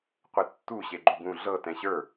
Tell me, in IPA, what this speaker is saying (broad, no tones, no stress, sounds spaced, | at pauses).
qʷ ɛ tː u ɕ e ɡ͡ǃ u ɡ ũ ɮ ɤ t ɛ̃ ɕ ə˞